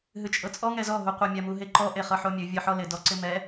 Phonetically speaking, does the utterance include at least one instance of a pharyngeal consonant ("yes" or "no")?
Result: yes